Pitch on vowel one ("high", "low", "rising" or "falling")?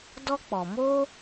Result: high